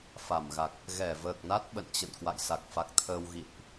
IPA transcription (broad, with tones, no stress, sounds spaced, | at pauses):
f a˧˩ m ɣ a˨˩ k̚ | ɣ ɛ˧˩ v əː˨˩ k̚ n a˦˥ t̚ ɓ ə̰˧˨ n t͡ɕ ə̰˧˨ n k w a̰˧˨ j s a˨˩ k̚ f a˨˩ k̚ t̪ʰ əː˧ w ɣ ḭ˧˨ n ʔ